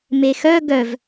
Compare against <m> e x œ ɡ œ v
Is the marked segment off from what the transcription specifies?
no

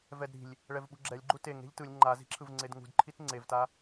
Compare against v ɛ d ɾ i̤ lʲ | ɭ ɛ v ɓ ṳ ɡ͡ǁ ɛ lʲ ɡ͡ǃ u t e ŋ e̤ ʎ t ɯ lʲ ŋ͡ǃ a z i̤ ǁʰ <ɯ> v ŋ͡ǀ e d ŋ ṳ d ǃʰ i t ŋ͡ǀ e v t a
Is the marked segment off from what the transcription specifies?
no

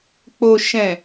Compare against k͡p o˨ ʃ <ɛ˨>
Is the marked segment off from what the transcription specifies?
yes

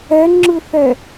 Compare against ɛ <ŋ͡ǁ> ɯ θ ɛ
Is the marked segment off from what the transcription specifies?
no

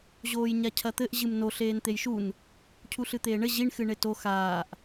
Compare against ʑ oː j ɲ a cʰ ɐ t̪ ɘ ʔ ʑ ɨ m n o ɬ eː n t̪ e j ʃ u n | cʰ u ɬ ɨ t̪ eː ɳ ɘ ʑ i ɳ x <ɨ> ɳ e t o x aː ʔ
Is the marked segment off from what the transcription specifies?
no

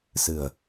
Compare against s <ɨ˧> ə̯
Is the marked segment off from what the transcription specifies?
yes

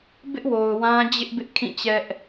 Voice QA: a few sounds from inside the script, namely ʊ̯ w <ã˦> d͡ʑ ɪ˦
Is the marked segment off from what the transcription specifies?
no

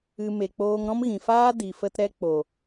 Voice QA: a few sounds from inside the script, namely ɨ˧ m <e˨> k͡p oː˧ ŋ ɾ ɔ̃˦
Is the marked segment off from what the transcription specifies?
no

